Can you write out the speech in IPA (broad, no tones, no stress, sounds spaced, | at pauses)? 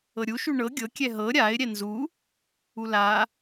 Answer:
ɤ ɾʲ u ʃ u ɳ ɤ ɡʲ ɤ kʲ ɛ ɦ ɤ ɾʲ a ɪ̯ ɾʲ ɛ n z u | u l a